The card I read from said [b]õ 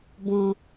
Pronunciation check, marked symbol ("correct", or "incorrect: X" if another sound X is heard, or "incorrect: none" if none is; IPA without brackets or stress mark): correct